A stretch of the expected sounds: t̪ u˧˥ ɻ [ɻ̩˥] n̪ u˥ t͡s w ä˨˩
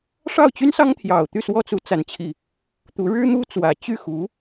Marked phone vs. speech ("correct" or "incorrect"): correct